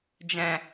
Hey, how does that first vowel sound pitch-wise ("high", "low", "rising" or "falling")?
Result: low